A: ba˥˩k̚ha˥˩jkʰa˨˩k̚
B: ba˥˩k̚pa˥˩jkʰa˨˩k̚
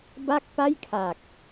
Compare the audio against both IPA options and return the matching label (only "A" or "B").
B